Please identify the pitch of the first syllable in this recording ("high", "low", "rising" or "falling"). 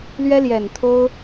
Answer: high